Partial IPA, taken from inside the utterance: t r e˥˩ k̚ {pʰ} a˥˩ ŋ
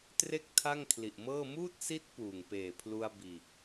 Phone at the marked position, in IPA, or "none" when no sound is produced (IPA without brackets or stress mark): tʰ